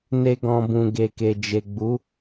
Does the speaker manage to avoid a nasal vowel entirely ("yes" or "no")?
no